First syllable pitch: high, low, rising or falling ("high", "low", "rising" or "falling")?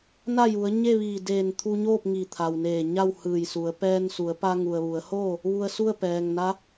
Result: falling